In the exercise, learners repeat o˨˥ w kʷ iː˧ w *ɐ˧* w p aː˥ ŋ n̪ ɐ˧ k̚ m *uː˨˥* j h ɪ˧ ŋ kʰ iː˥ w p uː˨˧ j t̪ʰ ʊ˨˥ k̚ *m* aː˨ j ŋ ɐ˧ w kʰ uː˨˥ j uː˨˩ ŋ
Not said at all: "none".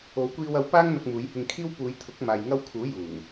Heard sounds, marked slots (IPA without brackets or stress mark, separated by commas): ɐ˧, uː˨˥, m